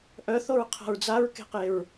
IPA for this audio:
ʔ œ θ o ɹ qʰ a̤ ɹ d͡z a ɹ k e̤ q e ɹ

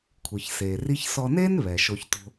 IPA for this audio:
kʷʰ ɯ˩ ç s eː˩ r i˥ ç s ɔ˧ n eː˥ n β ɛ˩ ʃ o˧ ç t o̤˧

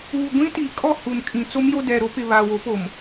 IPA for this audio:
uː˨ ɡʷ ĩ˦ t i˨ kʼ ɔ˦˨ h u˨ n kʼ ĩ˨ t͡s o˦ m j o˦ d ɛ˨ ɾ o˦ p ɪ˨ β aː˨ w o˨˦ p o˨ m

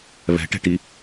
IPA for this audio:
β ɛ̤ ʈ ɛ̤ ʈ i

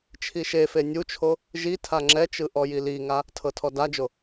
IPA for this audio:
t͡ʃʰ i ʃ e f e nʲ u t͡ʃʰ o | ʒ i tʰ a ŋ͡ǁ ɛ t͡ʃ ɯ ʔ ɔ j i l i ŋ a | tʰ ɤ tʰ ɔ d a d͡ʒ o

